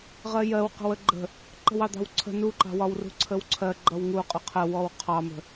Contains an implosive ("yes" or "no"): no